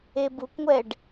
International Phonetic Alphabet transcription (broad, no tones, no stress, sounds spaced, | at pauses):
e b u kʷ ŋʷ ɛ ɖ